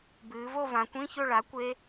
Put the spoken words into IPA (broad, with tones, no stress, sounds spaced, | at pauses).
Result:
b ɨː˩˧ v o˥˧ v ã˩˧ kʷ ĩ˧˥˧ ç ɵ˥˧ ɭ a˩˥ kʷ e˦˥